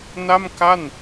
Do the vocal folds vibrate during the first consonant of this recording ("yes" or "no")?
yes